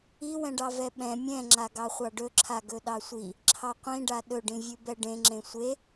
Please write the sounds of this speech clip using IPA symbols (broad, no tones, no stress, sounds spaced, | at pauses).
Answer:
i w ɛ̃ ɖ ɑ v ɛ ɓ ɛ̃ mʲ ɛ̃ ŋ͡ǁ a ɡ ɑ χʷ ɑ ɖ ɵ ǁʰ a ɡ ɵ ɗ ɑ sʷ i | ǁʰ ɑ qʷ ĩ ɖ a ɗ ɵ ɖ ĩ vʲ ʉ b ɛ ɖ ẽ ŋ͡ǁ ẽ sʷ e